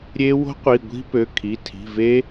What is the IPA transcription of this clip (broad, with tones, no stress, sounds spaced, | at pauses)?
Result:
ɾʲ e˦˥ w o̤˦˥ qʷ i˩˧˩ ɡʷ i̤˦˥ p ø˩˧˩ kʰ i˩˧˩ tʰ i̤˩˧˩ v e˦˥